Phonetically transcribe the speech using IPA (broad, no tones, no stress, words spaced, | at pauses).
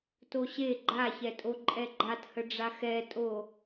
toɕe ɡ͡ǃaçɛtʼo ǃʼɛɡ͡ǃathəɖ͡ʐa xɛtʼo